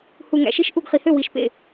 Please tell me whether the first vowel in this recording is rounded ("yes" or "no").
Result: yes